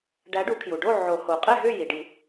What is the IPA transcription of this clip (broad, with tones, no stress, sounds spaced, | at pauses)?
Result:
ɖ æ˨˥ ɖ u˨˩˦ kʰ j u˩ ɖ o˥˨ ʕ o˨˩˦ h o˩ qʼ ɛ˥˨ ɦ ʏ˥˨ j i˩ ɖ i˨˩˦